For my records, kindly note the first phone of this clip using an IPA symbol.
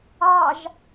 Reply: ɑ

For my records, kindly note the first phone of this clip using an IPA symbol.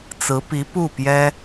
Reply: t͡s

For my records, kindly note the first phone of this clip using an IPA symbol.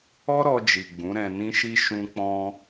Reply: ɔ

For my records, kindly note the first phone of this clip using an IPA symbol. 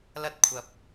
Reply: l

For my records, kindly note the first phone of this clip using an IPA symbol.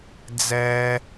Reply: d͡z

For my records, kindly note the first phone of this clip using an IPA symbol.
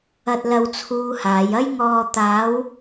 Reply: ɐ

